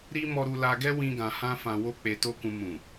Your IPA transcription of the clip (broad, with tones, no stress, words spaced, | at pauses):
ɾi˦ mɔ˧ɾu˧la˧ɡɛ˦ wĩ˦ɡã˧hã˦ fã˧wo˦ k͡pe˧to˦kũ˧ mũ˨